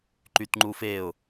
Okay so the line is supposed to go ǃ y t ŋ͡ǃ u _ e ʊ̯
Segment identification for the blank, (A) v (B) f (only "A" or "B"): B